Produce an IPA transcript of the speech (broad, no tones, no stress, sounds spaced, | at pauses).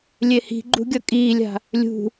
lʲ e h i̤ ɡ͡ǃ ṳ ɡʲ ʌ kʼ iː lʲ a̤ | lʲ ṳ